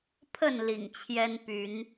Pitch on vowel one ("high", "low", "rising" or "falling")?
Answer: falling